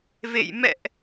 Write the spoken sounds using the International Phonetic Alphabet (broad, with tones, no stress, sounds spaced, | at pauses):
v ḛ˧˨ j m ɛ̰˧˨ ʔ